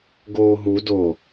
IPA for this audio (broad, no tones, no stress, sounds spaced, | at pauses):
ɡ oː ɦ u d o